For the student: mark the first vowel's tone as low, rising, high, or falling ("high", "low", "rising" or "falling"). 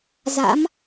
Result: rising